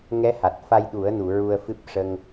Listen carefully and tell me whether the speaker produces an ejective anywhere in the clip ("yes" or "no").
no